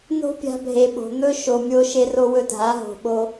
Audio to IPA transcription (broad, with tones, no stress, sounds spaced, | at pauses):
n o̤˦ pʲ a̤˧ bʱ e˨ ɓ o̤˨ n̪ ɵ˦ ʃ o˨ mʲ o˧ ʃ e˧ r o˧ w ɵ˧ dʱ a˨˦ ɦ o̤˨ ɓ o˧